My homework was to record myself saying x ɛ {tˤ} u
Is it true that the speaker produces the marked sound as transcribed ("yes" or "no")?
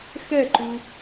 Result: no